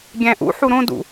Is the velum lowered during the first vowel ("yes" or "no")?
yes